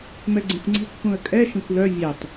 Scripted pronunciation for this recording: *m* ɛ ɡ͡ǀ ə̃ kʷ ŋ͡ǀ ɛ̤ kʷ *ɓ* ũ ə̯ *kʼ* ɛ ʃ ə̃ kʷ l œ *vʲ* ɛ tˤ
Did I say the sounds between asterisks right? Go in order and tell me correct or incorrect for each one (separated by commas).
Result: correct, incorrect, correct, correct